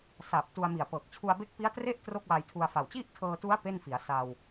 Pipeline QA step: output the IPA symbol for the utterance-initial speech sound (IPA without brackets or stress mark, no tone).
s